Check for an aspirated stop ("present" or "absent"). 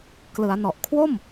present